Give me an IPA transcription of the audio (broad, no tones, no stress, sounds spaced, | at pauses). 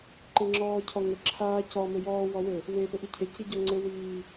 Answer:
ǃ e ŋ͡ǁ ɔː cʰ ɔ ŋ ɘ ǁʰ aː c ɔ m ɘ j ɔː w ɔ w ɘ | w e p ɘ ʔ i cʰ e c i ɟ ɔ ŋ͡ǀ ɘ w iː